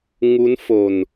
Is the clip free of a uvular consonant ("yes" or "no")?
yes